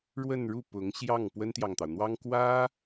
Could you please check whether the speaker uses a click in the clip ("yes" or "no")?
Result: no